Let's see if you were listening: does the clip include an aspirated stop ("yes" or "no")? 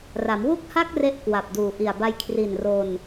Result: yes